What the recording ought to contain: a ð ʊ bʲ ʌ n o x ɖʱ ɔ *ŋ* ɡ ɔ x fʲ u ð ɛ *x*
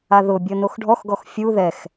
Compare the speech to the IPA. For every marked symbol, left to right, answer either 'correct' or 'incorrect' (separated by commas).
incorrect, correct